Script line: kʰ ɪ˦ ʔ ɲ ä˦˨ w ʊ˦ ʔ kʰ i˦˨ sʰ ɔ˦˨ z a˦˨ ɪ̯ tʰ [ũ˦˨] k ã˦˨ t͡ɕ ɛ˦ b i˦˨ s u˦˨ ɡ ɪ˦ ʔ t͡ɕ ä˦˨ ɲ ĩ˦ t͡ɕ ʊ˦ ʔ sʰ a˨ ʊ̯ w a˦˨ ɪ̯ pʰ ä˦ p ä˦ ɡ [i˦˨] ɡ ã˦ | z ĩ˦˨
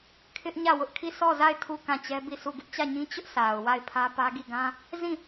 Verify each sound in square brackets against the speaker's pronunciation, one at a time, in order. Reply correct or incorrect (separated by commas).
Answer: incorrect, correct